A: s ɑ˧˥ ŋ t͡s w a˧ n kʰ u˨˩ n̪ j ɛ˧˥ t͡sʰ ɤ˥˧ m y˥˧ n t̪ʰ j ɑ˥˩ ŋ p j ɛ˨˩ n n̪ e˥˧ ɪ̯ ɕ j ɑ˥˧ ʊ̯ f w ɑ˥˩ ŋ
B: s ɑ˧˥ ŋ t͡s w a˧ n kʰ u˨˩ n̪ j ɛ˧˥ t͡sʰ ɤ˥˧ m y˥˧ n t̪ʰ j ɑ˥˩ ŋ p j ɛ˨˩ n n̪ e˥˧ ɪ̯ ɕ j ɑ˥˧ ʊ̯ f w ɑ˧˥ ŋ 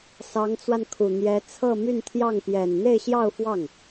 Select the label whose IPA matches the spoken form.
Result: A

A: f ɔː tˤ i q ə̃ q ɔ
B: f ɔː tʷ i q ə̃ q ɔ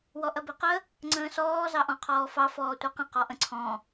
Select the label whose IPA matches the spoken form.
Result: B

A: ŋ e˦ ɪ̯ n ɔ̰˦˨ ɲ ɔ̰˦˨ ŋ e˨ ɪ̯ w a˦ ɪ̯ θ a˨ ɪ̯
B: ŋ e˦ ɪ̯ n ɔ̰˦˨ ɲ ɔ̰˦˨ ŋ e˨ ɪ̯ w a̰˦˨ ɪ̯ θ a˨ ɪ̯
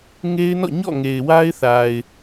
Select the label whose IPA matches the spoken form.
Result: A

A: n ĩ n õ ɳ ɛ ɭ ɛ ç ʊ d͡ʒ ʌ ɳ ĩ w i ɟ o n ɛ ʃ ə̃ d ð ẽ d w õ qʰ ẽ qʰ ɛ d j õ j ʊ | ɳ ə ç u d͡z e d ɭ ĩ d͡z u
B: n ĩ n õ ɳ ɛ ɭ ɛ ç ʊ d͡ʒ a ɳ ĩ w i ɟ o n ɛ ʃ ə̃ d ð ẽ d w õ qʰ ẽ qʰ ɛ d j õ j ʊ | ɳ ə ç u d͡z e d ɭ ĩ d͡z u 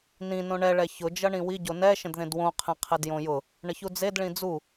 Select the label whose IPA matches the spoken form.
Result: A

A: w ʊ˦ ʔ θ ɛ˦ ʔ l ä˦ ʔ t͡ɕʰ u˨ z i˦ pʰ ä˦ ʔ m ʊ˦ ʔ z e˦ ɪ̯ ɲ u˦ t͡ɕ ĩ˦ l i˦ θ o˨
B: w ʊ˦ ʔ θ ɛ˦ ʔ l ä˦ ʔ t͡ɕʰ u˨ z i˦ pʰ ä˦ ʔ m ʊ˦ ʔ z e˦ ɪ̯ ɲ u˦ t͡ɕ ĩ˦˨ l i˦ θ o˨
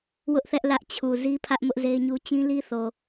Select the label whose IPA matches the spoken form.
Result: A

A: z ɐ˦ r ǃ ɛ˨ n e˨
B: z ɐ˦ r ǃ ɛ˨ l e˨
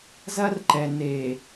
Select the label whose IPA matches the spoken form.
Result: A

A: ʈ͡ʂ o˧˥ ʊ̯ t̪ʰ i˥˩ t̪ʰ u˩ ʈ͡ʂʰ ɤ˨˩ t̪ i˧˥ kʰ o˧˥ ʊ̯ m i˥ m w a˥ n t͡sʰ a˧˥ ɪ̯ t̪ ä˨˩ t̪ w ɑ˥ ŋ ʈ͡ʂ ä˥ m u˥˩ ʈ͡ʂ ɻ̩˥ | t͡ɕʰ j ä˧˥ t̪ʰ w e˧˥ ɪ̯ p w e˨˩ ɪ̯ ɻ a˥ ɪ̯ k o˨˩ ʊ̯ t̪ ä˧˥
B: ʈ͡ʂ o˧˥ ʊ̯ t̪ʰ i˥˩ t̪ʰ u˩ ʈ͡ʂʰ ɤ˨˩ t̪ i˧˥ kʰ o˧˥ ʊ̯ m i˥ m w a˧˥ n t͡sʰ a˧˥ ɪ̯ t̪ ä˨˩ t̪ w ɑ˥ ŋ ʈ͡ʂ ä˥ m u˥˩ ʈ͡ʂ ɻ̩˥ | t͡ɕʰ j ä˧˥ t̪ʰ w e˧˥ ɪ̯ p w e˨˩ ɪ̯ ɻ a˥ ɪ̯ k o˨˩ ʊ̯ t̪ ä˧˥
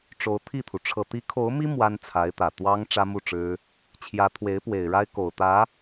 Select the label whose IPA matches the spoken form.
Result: A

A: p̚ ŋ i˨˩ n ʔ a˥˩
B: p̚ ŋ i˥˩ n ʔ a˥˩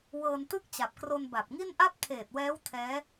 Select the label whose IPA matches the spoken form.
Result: B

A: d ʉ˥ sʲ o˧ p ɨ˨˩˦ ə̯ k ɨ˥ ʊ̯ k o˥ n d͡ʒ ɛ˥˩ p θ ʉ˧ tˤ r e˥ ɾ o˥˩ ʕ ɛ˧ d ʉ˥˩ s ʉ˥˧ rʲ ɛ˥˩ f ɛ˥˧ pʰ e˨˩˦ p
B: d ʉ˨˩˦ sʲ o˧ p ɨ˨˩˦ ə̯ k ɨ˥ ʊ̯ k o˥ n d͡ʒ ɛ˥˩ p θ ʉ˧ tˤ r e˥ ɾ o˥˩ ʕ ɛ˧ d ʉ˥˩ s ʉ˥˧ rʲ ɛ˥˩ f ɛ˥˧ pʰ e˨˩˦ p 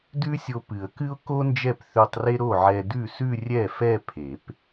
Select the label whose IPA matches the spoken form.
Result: A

